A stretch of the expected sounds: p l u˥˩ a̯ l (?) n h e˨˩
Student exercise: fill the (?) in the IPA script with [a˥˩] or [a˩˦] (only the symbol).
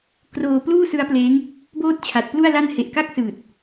a˥˩